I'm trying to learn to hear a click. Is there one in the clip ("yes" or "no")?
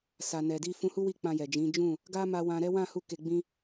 no